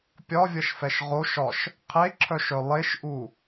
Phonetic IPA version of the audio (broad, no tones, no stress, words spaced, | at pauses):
pʲɒvʲʌʃfɛʃ ʁoʃɒʃ | qʰeǁʰœʃœ lˠeʃʔu